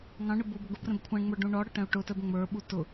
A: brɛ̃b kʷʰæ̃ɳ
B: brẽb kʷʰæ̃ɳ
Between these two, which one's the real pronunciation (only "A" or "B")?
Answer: A